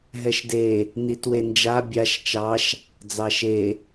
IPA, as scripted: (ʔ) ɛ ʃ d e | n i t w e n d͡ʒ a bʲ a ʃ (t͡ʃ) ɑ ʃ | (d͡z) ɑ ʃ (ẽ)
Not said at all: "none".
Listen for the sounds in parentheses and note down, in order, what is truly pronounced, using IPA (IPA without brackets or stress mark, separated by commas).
ɦ, t͡ʃ, d͡z, e